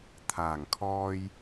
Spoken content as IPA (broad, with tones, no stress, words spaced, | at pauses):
t̪ʰaː˨˩ŋkʰɔː˧j